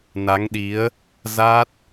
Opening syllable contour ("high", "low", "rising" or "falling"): rising